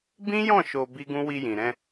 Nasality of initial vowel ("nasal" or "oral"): nasal